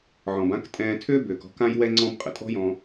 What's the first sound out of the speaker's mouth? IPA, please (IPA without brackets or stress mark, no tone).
ʕ